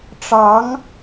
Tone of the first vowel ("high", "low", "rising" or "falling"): rising